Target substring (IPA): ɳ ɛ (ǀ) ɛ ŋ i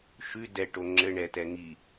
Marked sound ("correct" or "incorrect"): incorrect